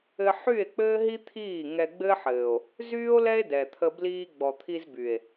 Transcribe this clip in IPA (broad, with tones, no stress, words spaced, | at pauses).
ɘ˧ ħy˦˨e̯k͡pɘː˦ɦi˦ t̪ʰiː˦˨ ŋɛ˧ɡ͡bɘ˦ħɘː˨o̯ | zyː˦o̯lɛ˦e̯ dɛ˨t̪ʰə˧ bliː˧ɡ͡bɔ˨t̪ʰi˧z by˨e̯